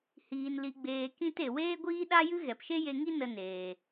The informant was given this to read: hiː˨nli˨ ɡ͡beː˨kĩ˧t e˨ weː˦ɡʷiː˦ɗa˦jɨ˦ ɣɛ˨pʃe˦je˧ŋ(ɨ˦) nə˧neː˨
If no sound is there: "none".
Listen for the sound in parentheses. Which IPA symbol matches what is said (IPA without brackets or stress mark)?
i˦